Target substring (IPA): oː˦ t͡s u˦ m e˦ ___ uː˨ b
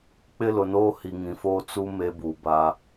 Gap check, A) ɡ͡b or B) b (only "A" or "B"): B